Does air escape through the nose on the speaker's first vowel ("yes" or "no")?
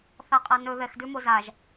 no